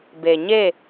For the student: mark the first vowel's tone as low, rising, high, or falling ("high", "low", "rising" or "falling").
low